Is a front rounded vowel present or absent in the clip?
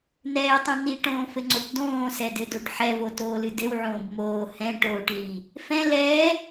absent